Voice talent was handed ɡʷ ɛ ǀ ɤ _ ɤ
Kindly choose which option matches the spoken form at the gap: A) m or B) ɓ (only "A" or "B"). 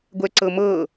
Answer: A